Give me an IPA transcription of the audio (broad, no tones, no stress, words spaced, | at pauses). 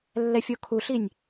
lːɛfʲokʰuɬinʲ